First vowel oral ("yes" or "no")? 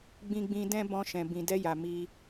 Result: no